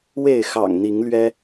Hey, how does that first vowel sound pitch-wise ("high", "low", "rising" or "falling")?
falling